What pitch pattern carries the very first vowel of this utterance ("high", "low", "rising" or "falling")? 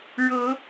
rising